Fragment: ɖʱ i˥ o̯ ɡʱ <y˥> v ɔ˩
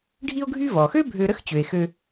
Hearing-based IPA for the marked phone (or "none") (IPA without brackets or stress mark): y˥